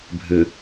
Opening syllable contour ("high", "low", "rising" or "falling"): low